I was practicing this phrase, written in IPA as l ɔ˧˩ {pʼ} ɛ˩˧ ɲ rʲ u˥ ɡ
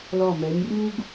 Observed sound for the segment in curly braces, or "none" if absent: m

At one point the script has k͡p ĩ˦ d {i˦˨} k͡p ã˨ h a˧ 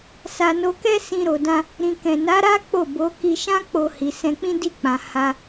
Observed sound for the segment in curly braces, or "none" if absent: i˦˨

